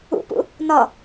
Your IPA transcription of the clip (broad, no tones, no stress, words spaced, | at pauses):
ṵpṵ | nɒ